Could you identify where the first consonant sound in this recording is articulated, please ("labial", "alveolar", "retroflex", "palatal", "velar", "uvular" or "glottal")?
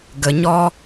velar